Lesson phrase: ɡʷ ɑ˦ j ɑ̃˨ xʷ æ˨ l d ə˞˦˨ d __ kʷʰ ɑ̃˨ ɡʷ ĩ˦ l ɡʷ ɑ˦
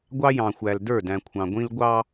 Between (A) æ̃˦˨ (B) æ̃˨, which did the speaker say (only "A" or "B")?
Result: B